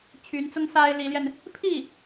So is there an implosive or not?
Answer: no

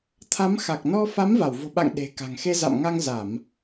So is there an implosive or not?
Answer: yes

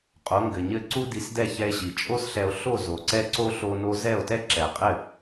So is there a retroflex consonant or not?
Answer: no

